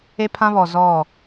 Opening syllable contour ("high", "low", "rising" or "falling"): high